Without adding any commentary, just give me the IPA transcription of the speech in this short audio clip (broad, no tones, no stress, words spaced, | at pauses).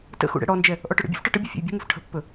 tə̰xṵ ɽɛ̰ɽɔnd͡ʒɛ | ʔɔʈɵɽə̰bʲṵf ʈɔʈəbʲɔ fʲɛ̰jbʲɛ̤ŋuf ʈʰə̤pːɵ